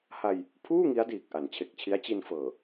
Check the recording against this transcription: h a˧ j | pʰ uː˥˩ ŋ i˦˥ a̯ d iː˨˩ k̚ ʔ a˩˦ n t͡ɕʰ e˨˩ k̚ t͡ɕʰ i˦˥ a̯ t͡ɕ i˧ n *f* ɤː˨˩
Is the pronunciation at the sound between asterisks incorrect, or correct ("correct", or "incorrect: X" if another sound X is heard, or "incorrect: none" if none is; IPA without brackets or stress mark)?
correct